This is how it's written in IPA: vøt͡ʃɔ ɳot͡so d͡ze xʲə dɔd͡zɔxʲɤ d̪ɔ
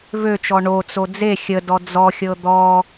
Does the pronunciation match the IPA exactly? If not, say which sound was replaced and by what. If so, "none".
none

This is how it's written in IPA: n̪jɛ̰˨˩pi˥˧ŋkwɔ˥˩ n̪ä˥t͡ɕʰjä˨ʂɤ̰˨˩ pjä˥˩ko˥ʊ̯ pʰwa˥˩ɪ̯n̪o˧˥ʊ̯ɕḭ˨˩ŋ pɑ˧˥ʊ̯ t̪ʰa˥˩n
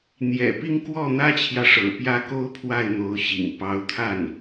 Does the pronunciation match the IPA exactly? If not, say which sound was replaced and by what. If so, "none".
none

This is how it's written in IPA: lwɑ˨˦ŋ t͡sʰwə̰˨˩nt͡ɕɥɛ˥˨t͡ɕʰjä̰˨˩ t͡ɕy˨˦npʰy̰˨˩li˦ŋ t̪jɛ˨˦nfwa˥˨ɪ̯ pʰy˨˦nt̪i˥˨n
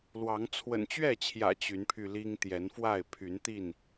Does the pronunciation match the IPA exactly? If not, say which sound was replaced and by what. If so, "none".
y̰˨˩ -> y˧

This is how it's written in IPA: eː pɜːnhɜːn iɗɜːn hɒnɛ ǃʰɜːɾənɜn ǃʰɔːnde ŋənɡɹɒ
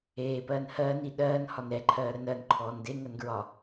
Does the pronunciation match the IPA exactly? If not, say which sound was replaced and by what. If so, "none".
none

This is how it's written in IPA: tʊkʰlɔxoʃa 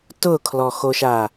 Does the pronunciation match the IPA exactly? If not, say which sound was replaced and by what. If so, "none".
none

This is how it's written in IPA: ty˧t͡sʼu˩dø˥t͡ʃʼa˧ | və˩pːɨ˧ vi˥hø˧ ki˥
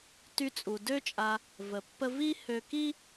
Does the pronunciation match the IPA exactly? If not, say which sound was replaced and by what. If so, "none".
ɨ˧ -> ə˧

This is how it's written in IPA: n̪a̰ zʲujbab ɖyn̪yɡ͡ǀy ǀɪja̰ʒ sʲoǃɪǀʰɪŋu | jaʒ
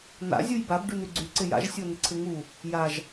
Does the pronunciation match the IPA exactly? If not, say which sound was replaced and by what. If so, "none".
ǃ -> n̪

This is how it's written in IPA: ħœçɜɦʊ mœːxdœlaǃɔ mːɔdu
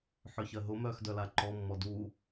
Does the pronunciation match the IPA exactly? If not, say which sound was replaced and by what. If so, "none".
none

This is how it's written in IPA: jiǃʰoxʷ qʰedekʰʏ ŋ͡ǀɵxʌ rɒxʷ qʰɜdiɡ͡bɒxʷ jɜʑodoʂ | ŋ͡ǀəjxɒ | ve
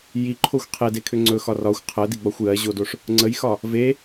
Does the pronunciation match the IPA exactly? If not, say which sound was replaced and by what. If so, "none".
ʌ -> ɒ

